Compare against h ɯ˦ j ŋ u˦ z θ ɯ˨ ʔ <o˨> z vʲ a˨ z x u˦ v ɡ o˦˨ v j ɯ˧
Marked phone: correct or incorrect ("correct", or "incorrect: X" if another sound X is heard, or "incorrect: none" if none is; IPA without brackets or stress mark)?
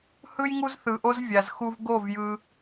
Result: incorrect: o˦